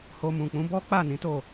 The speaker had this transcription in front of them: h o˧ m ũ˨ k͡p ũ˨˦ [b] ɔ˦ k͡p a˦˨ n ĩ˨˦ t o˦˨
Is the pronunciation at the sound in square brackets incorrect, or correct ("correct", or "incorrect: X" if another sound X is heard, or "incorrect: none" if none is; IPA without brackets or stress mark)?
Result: correct